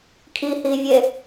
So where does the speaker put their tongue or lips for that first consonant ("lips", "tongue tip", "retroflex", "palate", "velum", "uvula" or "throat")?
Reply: velum